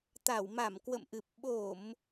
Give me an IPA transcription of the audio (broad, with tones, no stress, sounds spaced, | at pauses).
t̪ a˧˩ w m a˧˩ m k w ə̰˧˨ m ʔ ɨ˨˩ p̚ ɓ o˧˩˨ m